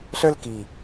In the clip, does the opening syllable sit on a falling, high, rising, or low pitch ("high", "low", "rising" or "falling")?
high